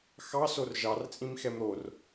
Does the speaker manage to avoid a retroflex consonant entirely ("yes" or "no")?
yes